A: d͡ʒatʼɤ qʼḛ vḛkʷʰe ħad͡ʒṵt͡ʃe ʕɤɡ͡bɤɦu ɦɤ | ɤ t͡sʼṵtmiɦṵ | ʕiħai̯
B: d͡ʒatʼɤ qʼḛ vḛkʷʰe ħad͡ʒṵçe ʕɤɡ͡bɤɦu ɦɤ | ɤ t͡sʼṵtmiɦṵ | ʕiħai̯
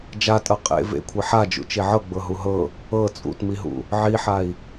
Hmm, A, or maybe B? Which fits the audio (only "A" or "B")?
A